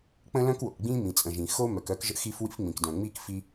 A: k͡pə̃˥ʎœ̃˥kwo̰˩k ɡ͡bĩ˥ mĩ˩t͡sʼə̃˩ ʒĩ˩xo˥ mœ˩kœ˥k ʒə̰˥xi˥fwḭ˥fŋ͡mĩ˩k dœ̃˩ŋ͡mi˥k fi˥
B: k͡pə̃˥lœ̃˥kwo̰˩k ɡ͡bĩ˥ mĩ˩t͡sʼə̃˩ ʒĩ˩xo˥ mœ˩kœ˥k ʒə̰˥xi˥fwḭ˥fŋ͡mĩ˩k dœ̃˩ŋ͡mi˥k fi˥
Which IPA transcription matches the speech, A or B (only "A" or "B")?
B